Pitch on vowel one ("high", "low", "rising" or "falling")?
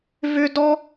high